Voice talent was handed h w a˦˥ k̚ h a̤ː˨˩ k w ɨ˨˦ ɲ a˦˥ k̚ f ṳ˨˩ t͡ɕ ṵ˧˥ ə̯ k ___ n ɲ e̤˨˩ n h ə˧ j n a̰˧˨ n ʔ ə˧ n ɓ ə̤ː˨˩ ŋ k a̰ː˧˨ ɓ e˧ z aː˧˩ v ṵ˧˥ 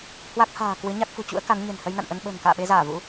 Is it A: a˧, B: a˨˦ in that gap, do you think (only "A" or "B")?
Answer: B